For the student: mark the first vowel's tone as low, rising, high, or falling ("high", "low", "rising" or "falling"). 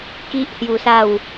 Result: high